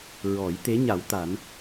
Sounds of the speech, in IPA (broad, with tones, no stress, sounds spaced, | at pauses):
ɹ ɔ˨˩˦ j t̪ e˧˥ ɲ a˨˩˦ w t̪ a˨˩˦ n